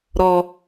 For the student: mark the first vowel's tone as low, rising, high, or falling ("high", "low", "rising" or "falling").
high